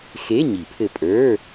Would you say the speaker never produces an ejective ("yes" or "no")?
no